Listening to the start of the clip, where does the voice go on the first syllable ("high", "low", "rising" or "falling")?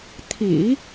low